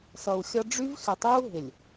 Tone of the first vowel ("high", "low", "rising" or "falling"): low